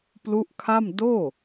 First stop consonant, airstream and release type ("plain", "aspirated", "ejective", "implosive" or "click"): plain